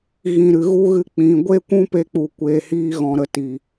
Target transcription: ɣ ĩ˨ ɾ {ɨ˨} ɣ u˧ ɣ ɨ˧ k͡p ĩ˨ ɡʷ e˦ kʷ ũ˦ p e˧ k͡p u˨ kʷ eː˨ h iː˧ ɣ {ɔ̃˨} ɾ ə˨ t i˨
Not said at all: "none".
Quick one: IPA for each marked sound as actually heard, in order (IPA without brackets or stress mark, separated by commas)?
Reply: ɨ˨, ɔ̃˨